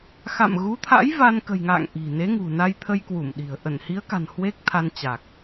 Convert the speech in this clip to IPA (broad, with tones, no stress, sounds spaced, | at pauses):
x a̰˧˨ m ɣ u˨˦ t̪ʰ a̰˧˥ j v a˧ n k ə̤˨˩ j ŋ a̰ː˧˨ ŋ ʔ i̤˨˩ n e˨˦ ŋ ṳ˨˩ n a˧ j t̪ʰ ə˧ j k w u˧˩ m ɗ i̤˨˩ ə̯ ʔ ə˧˩ n h i˨˦ ə̯ k a̤˨˩ n h w e˦˥ k̚ t̪ʰ a˧ n t͡ɕ a˨˩ k̚